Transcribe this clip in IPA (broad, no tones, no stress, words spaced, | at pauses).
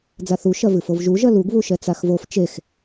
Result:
d͡zaθu ʃɐvɨfovʒu ʒɐluɡ βuʃɛt͡saxvof t͡ʃex